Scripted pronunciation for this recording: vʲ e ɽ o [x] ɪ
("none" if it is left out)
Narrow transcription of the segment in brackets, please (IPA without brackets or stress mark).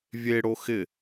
x